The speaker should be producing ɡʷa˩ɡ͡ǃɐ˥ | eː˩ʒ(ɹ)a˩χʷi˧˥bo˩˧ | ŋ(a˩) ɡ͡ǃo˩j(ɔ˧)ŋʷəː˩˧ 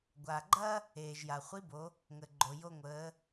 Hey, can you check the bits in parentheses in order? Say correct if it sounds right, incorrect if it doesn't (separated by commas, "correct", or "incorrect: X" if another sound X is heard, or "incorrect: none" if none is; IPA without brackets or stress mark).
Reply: incorrect: j, incorrect: ə˩, incorrect: o˧